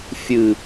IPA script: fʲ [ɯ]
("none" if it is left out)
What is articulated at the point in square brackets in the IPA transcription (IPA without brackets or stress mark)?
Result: ɯ